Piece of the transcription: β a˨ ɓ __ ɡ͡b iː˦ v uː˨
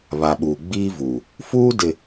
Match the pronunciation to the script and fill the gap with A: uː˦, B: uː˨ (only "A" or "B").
B